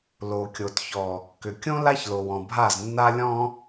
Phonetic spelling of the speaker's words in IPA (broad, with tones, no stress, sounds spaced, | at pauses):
l o˨ kʲ o˨ t ç ɔ˨ | k ʏ˨ kʲ õ˦ l a˦ ç l o˨ w ɔ̃˨ bʱ a˦˨ z nː a˦ lʲ ɔ̃˦